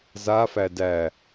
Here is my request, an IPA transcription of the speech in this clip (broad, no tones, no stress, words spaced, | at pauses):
zafæ dæ